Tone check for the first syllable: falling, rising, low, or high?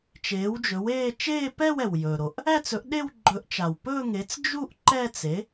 rising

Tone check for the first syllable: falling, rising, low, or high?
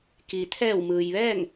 low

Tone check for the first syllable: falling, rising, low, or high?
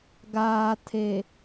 low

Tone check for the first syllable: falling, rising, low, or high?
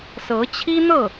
rising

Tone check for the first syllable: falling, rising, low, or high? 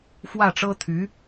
falling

